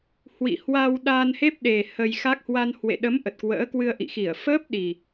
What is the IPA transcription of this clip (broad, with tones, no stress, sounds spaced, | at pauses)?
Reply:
h w ḭ˧˨ h w aː˧ w ɗ aː˧ n h e˦˥ p̚ ɗ e˨˩ h ə˧ j x a˦˥ k̚ h w a˧ n h w ḛ˧˨ ɗ ə˨˦ m ʔ ə˨˩ t̚ k w ə̰ː˧˥ k w ɨ˧ ə̯ ʔ ḭ˧˨ x i˧˩ ə̯ f əː˦˥ p̚ ɗ i˨˩